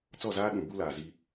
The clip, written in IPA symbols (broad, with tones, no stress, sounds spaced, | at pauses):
t͡s ɔ˦˨ z aː˦ ɗ ũ˨ b u˦ l aː˨ z i˦